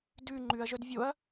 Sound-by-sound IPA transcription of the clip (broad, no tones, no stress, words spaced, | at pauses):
dʉ ŋ͡ǃʉɐ̯ʒœd vʲoɐ̯